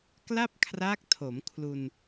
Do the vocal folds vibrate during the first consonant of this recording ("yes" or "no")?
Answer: no